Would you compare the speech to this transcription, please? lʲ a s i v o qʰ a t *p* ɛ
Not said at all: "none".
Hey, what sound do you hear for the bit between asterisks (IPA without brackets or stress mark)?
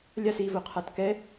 k